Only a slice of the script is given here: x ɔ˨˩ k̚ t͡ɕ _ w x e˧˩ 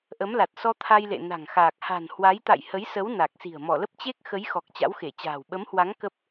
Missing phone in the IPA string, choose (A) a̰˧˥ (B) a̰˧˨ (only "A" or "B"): A